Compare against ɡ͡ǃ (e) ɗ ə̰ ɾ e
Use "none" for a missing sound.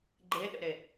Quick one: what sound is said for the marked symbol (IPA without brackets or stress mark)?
e